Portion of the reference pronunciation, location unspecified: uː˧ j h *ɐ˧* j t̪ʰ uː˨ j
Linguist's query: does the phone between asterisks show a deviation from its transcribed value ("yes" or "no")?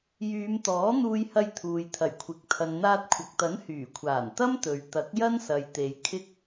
no